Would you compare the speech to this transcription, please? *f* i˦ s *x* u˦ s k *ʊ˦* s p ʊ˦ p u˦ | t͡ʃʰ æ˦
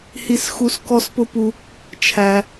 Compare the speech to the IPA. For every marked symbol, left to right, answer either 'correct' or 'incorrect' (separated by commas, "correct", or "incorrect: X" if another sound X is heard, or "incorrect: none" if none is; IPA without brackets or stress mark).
incorrect: h, correct, incorrect: ɔ˦